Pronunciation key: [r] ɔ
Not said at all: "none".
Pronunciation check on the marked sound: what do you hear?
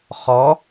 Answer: χ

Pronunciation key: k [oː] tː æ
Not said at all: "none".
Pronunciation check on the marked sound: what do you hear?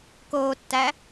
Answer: oː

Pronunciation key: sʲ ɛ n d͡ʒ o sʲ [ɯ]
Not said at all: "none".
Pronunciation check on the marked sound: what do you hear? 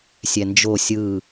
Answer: ɯ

